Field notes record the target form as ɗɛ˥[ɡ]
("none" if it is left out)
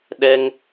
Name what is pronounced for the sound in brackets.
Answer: ŋ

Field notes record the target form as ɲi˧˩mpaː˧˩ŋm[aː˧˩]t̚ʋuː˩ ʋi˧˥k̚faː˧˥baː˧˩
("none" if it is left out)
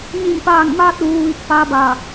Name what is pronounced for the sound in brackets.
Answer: aː˧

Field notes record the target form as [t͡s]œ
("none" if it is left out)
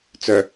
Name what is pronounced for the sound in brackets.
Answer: t͡s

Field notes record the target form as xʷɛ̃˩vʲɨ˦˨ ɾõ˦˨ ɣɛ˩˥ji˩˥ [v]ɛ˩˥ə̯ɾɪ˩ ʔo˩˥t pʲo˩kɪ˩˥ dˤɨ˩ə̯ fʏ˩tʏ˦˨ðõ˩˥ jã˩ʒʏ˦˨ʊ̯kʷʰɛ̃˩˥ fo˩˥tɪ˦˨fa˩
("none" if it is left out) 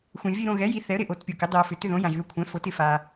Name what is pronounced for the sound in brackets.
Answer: θ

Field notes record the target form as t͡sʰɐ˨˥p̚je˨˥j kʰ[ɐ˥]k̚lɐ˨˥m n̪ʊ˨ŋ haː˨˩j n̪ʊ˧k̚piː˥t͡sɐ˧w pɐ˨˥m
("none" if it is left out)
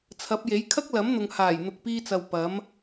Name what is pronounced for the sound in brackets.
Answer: ɐ˥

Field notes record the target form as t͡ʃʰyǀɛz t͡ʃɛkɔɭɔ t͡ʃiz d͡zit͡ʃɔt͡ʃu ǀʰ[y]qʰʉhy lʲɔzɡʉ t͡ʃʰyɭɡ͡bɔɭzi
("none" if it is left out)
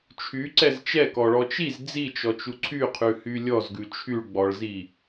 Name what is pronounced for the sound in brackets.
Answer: y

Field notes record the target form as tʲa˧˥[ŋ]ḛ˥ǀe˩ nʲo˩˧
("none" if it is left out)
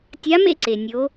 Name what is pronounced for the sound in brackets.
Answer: m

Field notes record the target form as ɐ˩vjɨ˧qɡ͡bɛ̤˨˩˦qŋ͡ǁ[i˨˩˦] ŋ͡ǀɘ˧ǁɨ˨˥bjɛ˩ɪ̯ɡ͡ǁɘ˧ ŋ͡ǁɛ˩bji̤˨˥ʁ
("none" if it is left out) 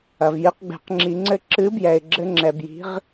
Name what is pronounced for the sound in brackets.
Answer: i˨˩˦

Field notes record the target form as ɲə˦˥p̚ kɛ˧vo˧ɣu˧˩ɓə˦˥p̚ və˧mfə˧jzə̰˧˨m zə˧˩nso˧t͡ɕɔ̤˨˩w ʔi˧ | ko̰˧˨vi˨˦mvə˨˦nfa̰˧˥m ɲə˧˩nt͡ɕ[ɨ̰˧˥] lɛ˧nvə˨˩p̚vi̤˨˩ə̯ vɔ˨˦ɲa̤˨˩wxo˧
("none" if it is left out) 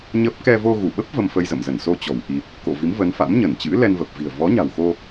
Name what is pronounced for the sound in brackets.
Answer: ɨ̰˧˥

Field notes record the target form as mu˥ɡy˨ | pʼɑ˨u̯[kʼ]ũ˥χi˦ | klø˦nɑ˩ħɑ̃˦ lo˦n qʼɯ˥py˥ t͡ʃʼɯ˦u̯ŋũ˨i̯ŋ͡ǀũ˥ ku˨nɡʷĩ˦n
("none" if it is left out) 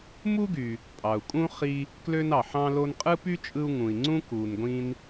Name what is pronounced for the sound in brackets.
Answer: kʼ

